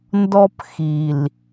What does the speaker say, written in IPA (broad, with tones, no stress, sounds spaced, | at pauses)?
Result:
n d ɔ˦ p x i˨ l